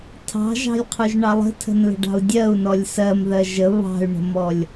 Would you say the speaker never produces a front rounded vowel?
no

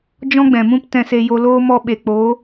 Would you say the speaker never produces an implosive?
no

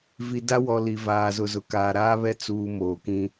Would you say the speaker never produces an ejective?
yes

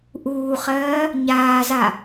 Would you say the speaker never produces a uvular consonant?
no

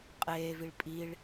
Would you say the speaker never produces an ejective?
no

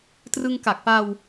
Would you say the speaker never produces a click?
yes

